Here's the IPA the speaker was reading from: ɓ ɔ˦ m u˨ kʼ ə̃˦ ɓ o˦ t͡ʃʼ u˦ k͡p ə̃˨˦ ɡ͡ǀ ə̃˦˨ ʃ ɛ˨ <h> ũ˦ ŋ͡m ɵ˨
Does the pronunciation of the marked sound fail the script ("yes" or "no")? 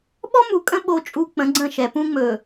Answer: yes